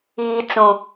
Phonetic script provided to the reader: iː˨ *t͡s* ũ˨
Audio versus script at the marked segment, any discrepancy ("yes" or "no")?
no